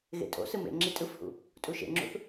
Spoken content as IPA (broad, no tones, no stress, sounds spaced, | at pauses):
ɣ ḛ tʼ o̰ s ɯ m ḛ ŋ͡ǁ i tʼ ɯ f h ṵ | tʼ u ʃ ḛ ŋ͡ǁ ṵ θ